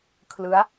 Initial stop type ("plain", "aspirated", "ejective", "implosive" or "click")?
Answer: aspirated